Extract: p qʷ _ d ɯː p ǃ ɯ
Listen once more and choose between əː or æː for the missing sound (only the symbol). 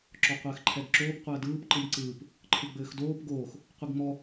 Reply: əː